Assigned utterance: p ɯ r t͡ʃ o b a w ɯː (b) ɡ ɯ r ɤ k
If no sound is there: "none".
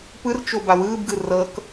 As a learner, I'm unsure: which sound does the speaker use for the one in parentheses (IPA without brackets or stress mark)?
b